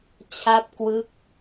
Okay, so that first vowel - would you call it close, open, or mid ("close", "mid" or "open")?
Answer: open